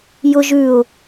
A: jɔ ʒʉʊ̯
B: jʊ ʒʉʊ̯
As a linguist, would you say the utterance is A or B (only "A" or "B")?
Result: B